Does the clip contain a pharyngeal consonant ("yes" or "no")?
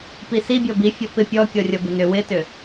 no